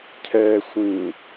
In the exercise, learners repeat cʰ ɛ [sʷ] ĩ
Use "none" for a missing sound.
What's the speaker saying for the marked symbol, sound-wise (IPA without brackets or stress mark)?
sʷ